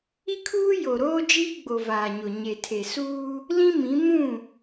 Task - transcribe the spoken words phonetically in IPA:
i˦ kʰ uː˦ j o˨ ɾ oː˦ d͡ʒ iː˦ ɡ͡b o˨ v aː˨ ɲ ʊ˨ ɲ e˨ tʰ e˨ s uː˦ | l ĩ˦ m ĩ˨˦ m ũ˦˨

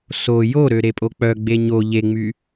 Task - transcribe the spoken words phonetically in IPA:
s o j o ɾ ø ɾ e pʼ o k͡p œ ɡ͡b e ɲ o ʎ e ŋ͡m y

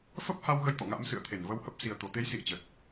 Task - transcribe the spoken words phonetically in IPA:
f ə˦˥ p̚ h a˧ w ɣ ə˧ j t̪ ɔ̰˧˨ ŋ a̰˧˥ m s ɨ̰˧˨ ə̯ t̪ʰ e˧˩ n v ə˧ w h ə˦˥ p̚ s i˨˩ ə̯ t̪ o˨˩ t̪ e˨˦ j s ḭ˧˨ ə̯ t͡ɕ ə˨˩ t̚

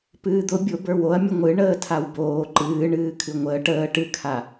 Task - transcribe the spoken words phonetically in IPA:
p ɨː d̪ ʊ bʲ ʊ b ə˞ w o ɐ̯ mʲ ʊ ŋʷ ɨ ɳ əː tʰ a w b oː ǃ ɨː ɳ ɨː kʰ ɨ ŋʷ əː ʈ əː ʈ ɨ kʰ a

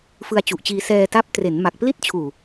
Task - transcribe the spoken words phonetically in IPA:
f ɯ˧ a̯ t͡ɕ u˨˩ ʔ t͡ɕ iː˧ s ɛː˧ t a˦˥ p̚ t r e˩˦ n m a˨˩ k̚ p l i˥˩ t̚ t͡ɕʰ uː˨˩

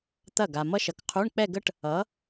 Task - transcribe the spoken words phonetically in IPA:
t̪ ɐ˥˩ ɡ a˨ m ʌ˥ ʃ ʌ˨ k qʰ u˧˥˧ ɳ k͡p ɛ˥˧ ɡ ə˥ ʈ | ʌ˩˥

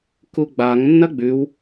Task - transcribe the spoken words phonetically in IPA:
k u ɡ͡b a ŋ nː ɐ ɡ͡b ʉ w

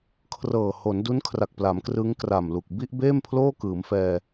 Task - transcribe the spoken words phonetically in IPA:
kʰ r ɤː˨˩ h o˩˦ n d u˦˥ n kʰ r a˨˩ k̚ p l a˩˦ m k r ɯː˦˥ ŋ k r a˨˩ m l u˨˩ k̚ b i˥˩ ʔ b eː˥˩ m pʰ l oː˥˩ k ɯː˩˦ m f ɛː˧

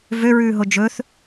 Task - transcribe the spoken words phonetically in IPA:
v ø ɹ ʉː ɦ o d͡ʒ ɵ θ

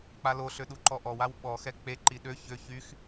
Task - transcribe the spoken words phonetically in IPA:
k͡p a l o ɬ ø ɗ u ǃ ɔ ʔ ɔ w a w ɓ ɔ x ɛ k͡p e ǃ i ɗ ø ç ø ç y x

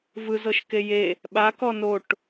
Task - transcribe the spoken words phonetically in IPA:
v ɯ z ɤ ʃ k e j e | ɓ a k ɔ n o ʈ

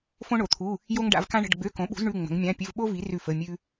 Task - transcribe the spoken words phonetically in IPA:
f õ˥ ɳ o˨˥ t̪ʰ u˧˥˧ | j o˥ ŋ ɖ a̰˨˥ v k ã˥ ɳ ə̤˧˥˧ ɖ ɡ͡b ø˧˥˧ k õ˨˥ ɓ ṳ˨˥ z ɳ ʉ˧˥˧ ŋ͡m ə̤˨˥ ŋ mʲ ã˧˥˧ pʲ ɘ˧˥˧ v ɓ o˥ v i˨˥ r ʉ˥˩ f ə˧˥˧ mʲ ʉ˥

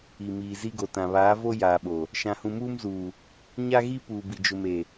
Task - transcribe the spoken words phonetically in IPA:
i˨ m iː˨ z i˦ ɡ o˨ t ã˨ β aː˨˦ v o˦ j aː˨ ɓ o˨ | ʃ ã˨ h ũ˨ m uː˦ m z uː˨ | ɲ a˦ ɣ i˦ p uː˨ b i˨ d͡ʒ ʊ˨ m e˨

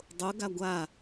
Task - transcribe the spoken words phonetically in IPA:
dˤ o ɡ a ɡʷ a

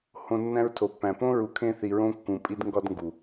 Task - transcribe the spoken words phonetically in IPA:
h õ˧ nː æ̃˧ ɹ tʰ o˨ pː æ̃˨ p õ˦ ɹ u˧ kʰ ẽ˦ θ i˧ ɹ õ˦ kː ũ˧ pʼ i˦ d ŋ ɡ ɒ˧ d ŋ ɡ u˨

